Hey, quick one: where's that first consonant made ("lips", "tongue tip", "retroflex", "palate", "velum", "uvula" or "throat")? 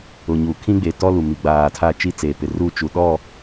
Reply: palate